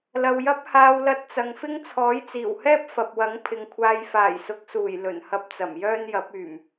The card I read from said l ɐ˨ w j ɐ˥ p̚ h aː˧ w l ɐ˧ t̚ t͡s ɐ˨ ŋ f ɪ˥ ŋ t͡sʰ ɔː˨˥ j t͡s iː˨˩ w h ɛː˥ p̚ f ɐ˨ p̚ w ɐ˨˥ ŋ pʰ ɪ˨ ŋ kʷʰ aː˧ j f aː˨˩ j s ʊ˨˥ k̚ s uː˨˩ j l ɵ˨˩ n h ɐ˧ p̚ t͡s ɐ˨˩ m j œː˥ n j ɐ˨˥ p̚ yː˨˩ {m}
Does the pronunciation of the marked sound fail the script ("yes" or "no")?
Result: no